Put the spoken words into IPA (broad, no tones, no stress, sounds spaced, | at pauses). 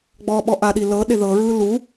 ɡ͡b ɔ ɓ ɔ ʔ a ɗ i l ɤ ɗ e ð ɤ ɹ ɯː l u